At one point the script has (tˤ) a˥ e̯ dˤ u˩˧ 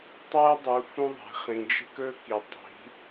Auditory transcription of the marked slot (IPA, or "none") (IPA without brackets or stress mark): tˤ